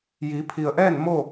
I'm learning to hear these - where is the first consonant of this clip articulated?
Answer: palate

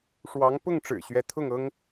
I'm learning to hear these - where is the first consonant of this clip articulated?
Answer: retroflex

